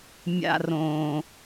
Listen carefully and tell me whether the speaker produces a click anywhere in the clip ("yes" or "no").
no